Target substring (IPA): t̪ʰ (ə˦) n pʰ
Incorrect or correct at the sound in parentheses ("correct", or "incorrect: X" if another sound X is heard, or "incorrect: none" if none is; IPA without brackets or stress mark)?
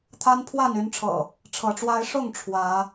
incorrect: a˦